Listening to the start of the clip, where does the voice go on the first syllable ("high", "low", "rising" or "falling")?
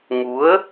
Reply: rising